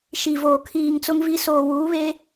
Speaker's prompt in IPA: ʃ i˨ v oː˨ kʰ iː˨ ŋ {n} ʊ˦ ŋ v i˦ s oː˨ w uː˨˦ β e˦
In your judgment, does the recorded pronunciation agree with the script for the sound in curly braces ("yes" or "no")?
no